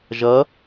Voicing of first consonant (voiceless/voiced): voiced